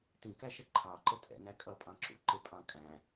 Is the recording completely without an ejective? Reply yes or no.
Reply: no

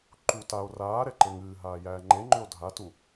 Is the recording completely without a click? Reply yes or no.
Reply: no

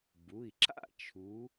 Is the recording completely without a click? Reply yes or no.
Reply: no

